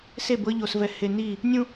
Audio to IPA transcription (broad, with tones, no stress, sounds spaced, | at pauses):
s e˦˨ b ɤ˦ ʎ o˨ s v ɛ˨ h e˨ n i˦˨ | nʲ ũ˦